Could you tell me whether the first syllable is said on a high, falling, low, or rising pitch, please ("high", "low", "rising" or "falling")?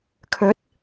rising